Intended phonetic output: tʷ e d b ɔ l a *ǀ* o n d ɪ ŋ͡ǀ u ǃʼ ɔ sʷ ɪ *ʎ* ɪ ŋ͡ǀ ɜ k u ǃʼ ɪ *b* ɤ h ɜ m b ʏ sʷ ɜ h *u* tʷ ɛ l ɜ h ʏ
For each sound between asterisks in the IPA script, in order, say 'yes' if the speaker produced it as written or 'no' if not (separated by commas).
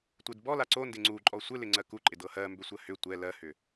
yes, no, no, no